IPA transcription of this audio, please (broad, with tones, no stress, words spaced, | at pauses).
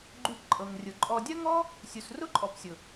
ɡ͡ǃʉ˧pǃʼɤ˨ŋrʲʊ˨ ǃʼɔ˨dʲɐ˦ŋɔ˦ | sʲu˨srʊ˦ǃʼɔ˨psʲʊ˨